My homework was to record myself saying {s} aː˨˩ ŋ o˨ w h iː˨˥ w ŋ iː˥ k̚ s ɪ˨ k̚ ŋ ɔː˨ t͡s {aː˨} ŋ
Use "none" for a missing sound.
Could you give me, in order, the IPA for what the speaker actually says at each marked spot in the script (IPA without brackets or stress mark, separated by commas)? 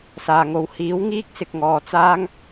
s, aː˥